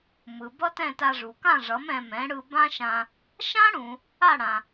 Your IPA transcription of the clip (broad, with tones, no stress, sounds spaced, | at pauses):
m ɯ˩ b ʌ˥ t ɛ̃˥˩ t a˧ ʐ u˩ k ã˥˩ ʐ ʌ˩˥ m ɛ̃˧ m ɛ̃˩˥ ɽ ɯ˧ b ã˥ ʃ ã˧ | ʃ ã˥ ɽ ũ˩ | a˥˩ ɽ ã˩